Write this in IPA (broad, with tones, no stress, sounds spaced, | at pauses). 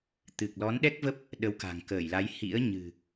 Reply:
t̪ ɨ˨˩ k̚ l ɔ˨˦ n ɗ ɛ˦˥ k̚ v ə˦˥ p̚ | ɗ ə˨˦ w k a̤˨˩ ŋ k əː˧˩ j l a˨˦ j h ḭ˧˥ ə̯ ɲ ɨ̤˨˩